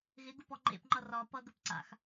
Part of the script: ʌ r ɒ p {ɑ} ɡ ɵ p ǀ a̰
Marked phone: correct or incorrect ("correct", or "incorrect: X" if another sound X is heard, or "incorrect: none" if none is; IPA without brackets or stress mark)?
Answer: incorrect: ʌ